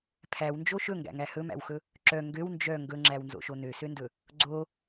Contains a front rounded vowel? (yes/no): yes